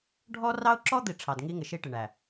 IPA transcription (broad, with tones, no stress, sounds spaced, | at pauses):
ɖʱ ɔ˦ r ɑ˦ ʊ̯ ǁ ɔ˦ d̪ i˨ ʈ͡ʂʰ ɑ˨ d ŋ i˦ ŋ ɪ˨ ʃ i˦ ʈ ɪ˨ ɳ æ˨